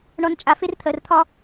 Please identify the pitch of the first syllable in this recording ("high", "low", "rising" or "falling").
low